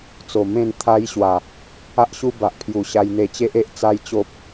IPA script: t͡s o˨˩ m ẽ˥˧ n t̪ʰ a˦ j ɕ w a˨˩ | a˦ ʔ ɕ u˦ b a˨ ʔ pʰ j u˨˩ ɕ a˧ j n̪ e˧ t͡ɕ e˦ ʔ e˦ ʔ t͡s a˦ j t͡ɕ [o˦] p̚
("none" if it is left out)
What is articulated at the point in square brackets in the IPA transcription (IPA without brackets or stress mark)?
o˦